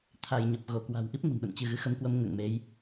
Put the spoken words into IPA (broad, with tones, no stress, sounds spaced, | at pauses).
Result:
t̪ʰ a˧˩ j ɲ ə˨˩ p̚ ɣ o˧˩ k w a̤˨˩ w ʔ i˦˥ p̚ ŋ ə̤˨˩ n ɗ ə̰˧˨ n t͡ɕ ɨ˧˩ ɣ ɨ˨˦ x ə˨˦ m k w ə˨˦ m ŋ ə̰ː˧˨ ŋ m e˨˦ j